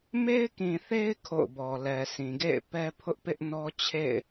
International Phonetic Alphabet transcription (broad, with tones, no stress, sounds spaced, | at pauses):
m e˦ ɪ̯ k ĩ˨ θ e˦ ɪ̯ kʰ o̰˦˨ ʊ̯ b ɔ˨ l ɛ˨ sʰ ĩ˨ ɡ ḛ˦˨ ɪ̯ p ɛ˦ pʰ ʊ˦ ʔ p ɪ˦ ʔ n ɔ˦ t͡ɕʰ ḛ˦˨ ɪ̯